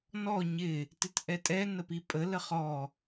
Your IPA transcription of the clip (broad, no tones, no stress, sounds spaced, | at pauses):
n ɔ ɲ ɪ | t ɪ t ʔ ɛ tʼ ɛ n ə p i pʼ ə l ə χ ɔ